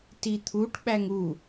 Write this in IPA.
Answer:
t i t̪ʰ u ʈ ɓ æ ŋ u

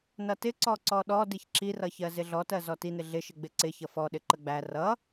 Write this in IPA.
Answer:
n ʌ t ɪ ǀ ɔ ǀ ɔ ɗ ɔ d i ç ǁ i r ʌ ç ɜ z ɪ ɮ ɔ t ɜ z ɔ t i n ɪ ɮ ɪ ʃ ɪ ɡ͡b ɪ ǀ ɪ ç ʌ f ɔ ɗ ɪ ǃ ə ɡ͡b æ r ʌ

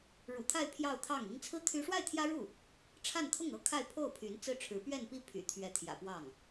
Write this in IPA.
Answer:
ɻ ṵ˨˩ t̪ʰ a˥˧ ɪ̯ pʰ j ɑ˥˧ ʊ̯ t̪ʰ ɑ˥˩ ŋ i˥ ŋ t͡sʰ ɹ̩˥ t̪ʰ y˥ ʂ w a˥˩ ɪ̯ t̪ʰ j ä˥ ɻ u˥˩ | ʈ͡ʂʰ a˥˧ n t̪ʰ ʊ˥˩ ŋ ɤ˥ kʰ a˥˧ ɪ̯ pʰ o˥˩ ʊ̯ pʰ y˧˥ n t͡s ɹ̩˥˩ ʈ͡ʂʰ ɻ̩˧˥ p ɥ ɛ˥˧ n p i˥˩ pʰ y̰˨˩ t̪ʰ ɥ ɛ˧˥ t̪ʰ j ä̰˨˩ p w ɑ˥˩ ŋ

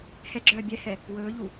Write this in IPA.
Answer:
h ɛ ɡ͡ǁ œː bʲ ɛ h ɛ | w ɵː ʎ u

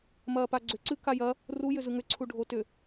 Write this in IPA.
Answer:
m ɐː p a ɡ͡ǀ ʏ ǀ ɨ k a j ɐ | r u j ʏ z ɯ ŋ ʏ ǀʰ u ɖʱ o t ʏ

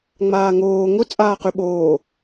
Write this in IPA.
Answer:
ŋ͡m aː ŋ oː ŋ ʊ t͡sʼ aː q y ɓ oː

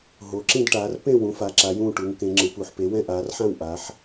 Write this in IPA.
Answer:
ɦ o˩˧ ǁ ĩ˦˨ d ʈ aː˩˧ r p ẽ˦˨ w ũ˩˧ f a˩˧ ǁ a˩˧ j ũː˦˨ ʈ u˩˧ ŋ k ẽ˩˧ ŋ͡ǁ ɯ˩˧ p u˩˧ ħ p e˩˧ w ɛ̃˦˨ ʔ aː˩˧ r ħ ã˦˨ w ʔ a˩˧ ħ

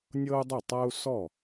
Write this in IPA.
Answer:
nʲ ɤ˥ u̯ dˤ u˥˩ tˤ a˥ u̯ s ɔ˥˩

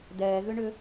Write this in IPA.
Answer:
d ɛː ɣ ʏ ɳ ʏ

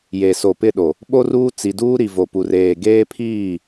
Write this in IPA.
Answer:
j e˨ s o˨ p ɪ˦˨ ɗ o˨ | ɓ o˦ r uː˦ t͡s i˨ d uː˦ ɾ i˨ v o˨ p u˨ r eː˨ ɡ eː˦ pʰ iː˦˨

